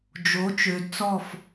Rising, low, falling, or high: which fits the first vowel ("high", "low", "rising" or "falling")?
rising